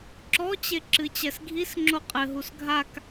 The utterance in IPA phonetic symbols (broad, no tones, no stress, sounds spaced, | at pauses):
ǁ ɔ t͡ɕ e ǁ ɨ t͡ɕ ɛ s ɡʱ i s ŋ͡ǁ o qʼ ɘ ɦ u s ɡʱ a k